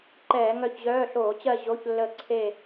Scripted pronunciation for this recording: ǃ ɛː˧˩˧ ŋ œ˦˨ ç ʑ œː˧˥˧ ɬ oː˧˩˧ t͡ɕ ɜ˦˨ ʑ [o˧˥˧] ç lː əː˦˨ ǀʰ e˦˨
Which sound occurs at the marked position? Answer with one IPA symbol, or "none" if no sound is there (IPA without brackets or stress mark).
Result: o˧˥˧